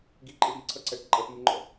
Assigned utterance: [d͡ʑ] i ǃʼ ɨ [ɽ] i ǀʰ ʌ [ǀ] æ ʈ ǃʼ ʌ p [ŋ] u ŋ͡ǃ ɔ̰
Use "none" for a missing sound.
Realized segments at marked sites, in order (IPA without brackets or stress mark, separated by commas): ɡ, ɽ, ǀ, m